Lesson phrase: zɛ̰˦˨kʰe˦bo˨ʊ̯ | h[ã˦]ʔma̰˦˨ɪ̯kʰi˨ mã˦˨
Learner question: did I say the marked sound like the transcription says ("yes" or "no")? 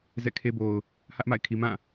no